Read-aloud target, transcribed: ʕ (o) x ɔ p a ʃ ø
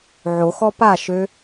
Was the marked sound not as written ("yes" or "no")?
no